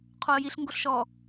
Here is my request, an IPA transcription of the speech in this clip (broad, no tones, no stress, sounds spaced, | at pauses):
qʰ o ə̯ j i ɬ ŋ ɡ o ɬ ʃ ɔ